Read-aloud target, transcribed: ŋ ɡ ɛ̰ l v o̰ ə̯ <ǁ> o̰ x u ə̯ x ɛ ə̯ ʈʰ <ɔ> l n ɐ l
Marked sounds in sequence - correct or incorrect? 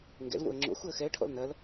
incorrect: ŋ͡ǁ, incorrect: ɔ̰

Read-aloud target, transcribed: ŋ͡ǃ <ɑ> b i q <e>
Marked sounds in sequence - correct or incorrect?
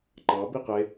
correct, correct

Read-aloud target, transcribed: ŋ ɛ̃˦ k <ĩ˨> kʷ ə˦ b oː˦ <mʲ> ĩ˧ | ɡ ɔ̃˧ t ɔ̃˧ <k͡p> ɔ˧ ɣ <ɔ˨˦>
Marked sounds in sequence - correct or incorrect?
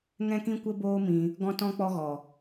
incorrect: ĩ˦, incorrect: m, correct, incorrect: ɔ˨

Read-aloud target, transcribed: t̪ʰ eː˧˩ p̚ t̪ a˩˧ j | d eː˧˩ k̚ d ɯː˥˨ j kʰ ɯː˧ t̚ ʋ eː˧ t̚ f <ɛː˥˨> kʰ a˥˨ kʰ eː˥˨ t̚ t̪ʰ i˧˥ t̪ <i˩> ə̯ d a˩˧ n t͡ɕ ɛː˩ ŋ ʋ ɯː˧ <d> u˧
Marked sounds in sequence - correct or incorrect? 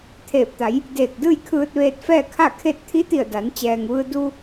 correct, incorrect: i˧˩, correct

